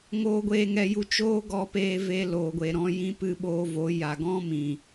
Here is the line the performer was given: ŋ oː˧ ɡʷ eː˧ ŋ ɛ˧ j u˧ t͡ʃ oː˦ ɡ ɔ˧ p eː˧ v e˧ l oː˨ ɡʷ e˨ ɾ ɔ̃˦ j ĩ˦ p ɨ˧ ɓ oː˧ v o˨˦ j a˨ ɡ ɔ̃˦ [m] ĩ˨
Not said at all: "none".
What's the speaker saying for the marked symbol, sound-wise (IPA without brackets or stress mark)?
m